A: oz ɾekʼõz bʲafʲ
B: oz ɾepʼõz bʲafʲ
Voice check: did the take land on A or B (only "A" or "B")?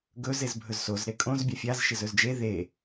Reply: A